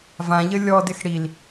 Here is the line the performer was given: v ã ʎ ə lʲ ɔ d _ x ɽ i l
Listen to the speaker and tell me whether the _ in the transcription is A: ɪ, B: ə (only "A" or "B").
A